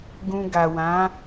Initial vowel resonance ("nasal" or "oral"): nasal